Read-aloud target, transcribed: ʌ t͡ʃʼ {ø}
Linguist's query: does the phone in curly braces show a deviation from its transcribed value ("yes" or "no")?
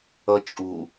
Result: yes